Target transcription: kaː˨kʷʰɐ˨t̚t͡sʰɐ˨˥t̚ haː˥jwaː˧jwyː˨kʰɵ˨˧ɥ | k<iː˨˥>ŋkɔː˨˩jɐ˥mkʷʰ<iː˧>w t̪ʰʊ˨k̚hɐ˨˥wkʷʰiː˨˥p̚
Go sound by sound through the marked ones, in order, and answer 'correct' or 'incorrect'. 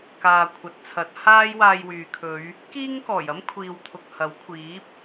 incorrect: iː˥, incorrect: iː˨

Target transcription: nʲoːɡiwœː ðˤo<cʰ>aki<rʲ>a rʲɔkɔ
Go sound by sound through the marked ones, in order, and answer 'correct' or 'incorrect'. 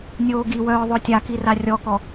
incorrect: tʲ, incorrect: r

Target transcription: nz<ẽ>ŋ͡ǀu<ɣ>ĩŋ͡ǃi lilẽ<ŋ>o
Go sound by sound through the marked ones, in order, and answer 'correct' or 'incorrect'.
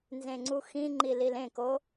correct, incorrect: x, incorrect: k

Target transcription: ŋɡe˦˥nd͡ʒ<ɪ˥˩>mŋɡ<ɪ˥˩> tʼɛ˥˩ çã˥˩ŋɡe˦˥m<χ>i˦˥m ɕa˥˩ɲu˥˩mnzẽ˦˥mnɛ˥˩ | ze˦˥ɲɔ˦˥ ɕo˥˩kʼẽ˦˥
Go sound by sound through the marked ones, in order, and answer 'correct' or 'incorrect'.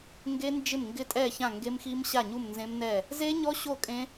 correct, correct, incorrect: x

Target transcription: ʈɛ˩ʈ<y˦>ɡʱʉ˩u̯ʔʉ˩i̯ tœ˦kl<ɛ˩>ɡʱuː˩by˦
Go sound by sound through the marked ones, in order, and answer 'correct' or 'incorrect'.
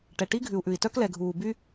incorrect: i˦, correct

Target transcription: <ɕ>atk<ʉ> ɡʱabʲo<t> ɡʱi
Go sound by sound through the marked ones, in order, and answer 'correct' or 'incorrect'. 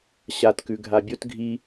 correct, correct, correct

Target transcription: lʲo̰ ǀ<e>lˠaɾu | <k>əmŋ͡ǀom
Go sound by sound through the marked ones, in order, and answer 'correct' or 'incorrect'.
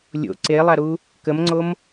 correct, correct

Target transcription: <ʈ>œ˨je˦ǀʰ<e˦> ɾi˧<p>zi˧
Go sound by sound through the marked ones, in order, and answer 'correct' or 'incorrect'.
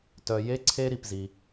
incorrect: t, correct, correct

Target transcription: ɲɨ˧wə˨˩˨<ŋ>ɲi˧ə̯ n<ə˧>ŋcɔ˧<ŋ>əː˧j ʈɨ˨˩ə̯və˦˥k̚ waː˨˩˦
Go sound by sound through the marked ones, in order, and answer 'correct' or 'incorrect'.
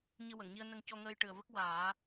correct, correct, correct

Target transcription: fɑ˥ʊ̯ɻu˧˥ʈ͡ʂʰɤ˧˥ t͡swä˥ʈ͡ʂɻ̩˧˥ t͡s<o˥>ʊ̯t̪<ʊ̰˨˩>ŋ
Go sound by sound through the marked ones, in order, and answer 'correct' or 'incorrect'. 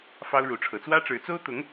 correct, incorrect: ʊ˧˥

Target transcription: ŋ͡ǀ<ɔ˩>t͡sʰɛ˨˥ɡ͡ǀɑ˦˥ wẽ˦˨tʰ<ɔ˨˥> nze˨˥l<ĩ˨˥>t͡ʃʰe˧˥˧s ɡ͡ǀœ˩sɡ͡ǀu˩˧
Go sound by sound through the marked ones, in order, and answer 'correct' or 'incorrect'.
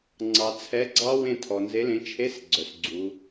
incorrect: ɑ˩, incorrect: ɔ˩, incorrect: ẽ˨˥

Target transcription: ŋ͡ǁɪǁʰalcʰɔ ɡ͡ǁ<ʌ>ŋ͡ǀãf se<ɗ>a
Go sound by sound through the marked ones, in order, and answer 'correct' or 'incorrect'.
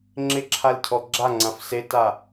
incorrect: a, incorrect: t

